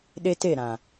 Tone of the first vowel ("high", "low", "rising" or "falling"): high